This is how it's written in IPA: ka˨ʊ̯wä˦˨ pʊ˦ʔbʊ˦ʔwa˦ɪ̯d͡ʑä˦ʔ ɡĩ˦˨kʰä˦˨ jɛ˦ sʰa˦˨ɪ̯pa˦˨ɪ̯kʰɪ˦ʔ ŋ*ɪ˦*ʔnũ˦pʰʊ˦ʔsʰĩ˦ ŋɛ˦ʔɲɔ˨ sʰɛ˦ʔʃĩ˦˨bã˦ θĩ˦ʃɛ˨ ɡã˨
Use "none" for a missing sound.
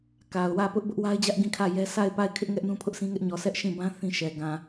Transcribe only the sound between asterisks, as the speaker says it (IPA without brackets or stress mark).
ɛ˦